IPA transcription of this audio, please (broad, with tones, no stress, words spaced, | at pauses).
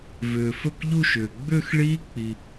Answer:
vʏː˨fɵ˥˩kʎu˥˧ʃʏː˨ ɡ͡bʏː˥˧xɭiː˦˥ k͡pi˨